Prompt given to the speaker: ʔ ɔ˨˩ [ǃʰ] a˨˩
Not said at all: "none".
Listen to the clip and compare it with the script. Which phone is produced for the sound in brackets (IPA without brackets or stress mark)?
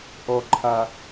ǃʰ